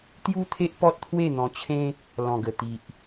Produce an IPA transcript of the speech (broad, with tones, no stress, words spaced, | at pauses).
t̪ju˦t̪ʰe˦ʔ pɔ˦t̚t̪ʰwe˥˧n̪ɔ̃˧t͡ɕʰẽ˦ | lɔ̃˨˩ɡə˨˩ t̪i˨ʔ